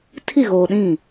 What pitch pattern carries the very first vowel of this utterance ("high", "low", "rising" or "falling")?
falling